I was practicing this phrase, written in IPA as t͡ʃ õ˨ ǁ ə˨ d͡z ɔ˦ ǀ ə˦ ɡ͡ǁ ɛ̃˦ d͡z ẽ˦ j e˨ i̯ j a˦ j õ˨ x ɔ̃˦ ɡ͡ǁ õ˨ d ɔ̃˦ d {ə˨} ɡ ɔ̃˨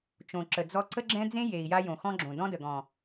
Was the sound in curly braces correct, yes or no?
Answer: yes